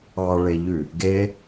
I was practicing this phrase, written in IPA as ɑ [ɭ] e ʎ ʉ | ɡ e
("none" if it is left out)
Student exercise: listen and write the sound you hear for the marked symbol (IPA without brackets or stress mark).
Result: ɭ